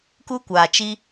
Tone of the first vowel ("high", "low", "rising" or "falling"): high